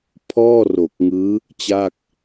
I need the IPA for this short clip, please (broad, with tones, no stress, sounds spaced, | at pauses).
pʰ ɔː˥˩ r o˨˩ k̚ ŋ ɯː˦˥ | t͡ɕ a˥˩ k̚